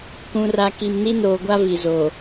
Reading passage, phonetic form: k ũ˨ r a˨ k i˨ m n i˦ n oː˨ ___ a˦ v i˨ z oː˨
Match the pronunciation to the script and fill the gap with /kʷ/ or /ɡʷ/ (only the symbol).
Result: ɡʷ